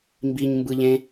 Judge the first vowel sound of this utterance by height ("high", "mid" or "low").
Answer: high